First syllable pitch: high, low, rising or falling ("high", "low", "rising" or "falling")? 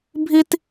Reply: high